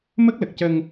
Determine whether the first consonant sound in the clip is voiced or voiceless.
voiced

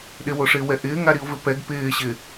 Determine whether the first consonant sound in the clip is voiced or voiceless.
voiced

